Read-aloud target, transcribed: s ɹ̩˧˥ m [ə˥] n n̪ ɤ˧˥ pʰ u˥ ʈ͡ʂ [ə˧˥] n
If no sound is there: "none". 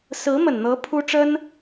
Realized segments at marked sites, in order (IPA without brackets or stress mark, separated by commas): ə˨˩, ə˥